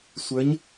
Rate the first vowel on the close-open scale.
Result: mid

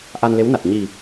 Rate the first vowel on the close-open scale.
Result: open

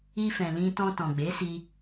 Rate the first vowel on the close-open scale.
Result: close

